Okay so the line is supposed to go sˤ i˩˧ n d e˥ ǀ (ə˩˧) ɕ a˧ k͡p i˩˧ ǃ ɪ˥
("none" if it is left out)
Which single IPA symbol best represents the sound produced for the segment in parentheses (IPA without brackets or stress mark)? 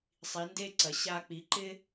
ɐ˩˧